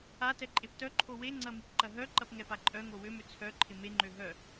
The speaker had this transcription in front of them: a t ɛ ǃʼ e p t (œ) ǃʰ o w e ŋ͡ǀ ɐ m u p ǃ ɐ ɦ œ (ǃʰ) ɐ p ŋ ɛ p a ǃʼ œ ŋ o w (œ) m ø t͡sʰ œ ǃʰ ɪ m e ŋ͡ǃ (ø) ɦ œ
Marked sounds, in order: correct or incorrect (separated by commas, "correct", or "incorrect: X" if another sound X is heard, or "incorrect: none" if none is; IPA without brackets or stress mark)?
correct, incorrect: ǃ, incorrect: ø, correct